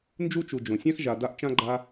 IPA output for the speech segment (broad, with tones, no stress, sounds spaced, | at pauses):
n d͡ʒ u˥ t͡ʃ u˨ d͡ʒ õ˩ sʲ ã˥ x ʒ a˨ d a˦ ʔ t͡ʃ ã˥ ɡ͡ǃ a˦